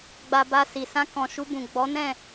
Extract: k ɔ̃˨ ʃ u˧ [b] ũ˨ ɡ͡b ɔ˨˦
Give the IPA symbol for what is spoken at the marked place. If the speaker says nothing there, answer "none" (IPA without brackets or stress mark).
b